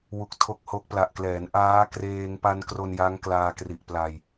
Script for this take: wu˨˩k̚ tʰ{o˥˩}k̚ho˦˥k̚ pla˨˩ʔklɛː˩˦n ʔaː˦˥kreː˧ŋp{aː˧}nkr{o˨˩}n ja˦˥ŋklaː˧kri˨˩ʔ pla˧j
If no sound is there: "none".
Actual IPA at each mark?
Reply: o˦˥, a˧, o˧

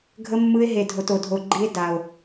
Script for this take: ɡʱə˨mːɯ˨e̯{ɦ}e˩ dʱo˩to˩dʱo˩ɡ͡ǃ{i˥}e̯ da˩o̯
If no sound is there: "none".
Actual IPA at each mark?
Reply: ɦ, i˨

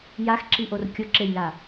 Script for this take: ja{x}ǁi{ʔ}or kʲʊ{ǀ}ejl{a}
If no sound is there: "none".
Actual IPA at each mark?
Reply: x, ʔ, ǁ, a

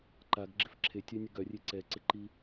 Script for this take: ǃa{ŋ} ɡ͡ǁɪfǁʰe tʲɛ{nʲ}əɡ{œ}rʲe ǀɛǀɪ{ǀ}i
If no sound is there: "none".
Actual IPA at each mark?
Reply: ɡ, nʲ, œ, ǃ

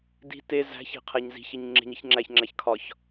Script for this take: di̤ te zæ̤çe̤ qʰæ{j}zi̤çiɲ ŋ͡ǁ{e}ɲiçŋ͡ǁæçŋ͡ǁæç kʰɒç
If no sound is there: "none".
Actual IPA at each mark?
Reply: ɲ, e̤

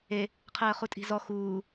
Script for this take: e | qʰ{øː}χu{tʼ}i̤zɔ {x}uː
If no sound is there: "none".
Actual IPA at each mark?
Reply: əː, tʼ, x

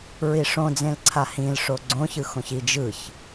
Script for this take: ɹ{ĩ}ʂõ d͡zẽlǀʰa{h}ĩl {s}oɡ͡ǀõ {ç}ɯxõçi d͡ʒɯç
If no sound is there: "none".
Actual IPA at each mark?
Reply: i, h, ʂ, ç

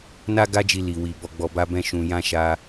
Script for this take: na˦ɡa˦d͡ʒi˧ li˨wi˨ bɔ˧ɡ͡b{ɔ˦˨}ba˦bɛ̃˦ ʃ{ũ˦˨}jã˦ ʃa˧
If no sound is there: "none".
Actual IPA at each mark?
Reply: ɔ˧, ũ˧

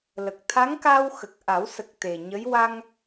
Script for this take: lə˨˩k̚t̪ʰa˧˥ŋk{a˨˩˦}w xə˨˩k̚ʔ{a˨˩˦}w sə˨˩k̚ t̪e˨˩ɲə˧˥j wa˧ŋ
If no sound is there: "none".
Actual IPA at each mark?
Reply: a˧, a˨˩˦

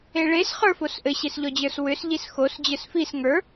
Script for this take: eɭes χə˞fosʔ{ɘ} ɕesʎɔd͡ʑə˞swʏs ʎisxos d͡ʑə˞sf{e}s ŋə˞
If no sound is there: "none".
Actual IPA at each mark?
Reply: ɘ, i

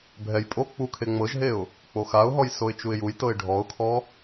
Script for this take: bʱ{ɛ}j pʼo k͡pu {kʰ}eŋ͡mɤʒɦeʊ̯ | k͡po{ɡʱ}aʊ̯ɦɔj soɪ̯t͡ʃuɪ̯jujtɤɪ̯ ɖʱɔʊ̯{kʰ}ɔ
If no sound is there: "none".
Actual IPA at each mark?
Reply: ɛ, kʰ, x, kʰ

